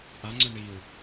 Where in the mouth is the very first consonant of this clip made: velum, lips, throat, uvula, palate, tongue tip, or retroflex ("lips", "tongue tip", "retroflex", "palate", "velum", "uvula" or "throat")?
throat